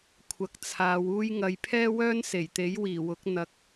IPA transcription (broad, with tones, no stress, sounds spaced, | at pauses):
kʷʰ ɐ˨ k̚ t͡sʰ aː˨˧ w uː˥ j ŋ ɐ˧ j pʰ ɛː˥ w œː˥ n s e˨˩ j t̪ e˨˥ j w iː˨˩ w ʊ˨˥ k̚ n̪ ɐ˨˥ k̚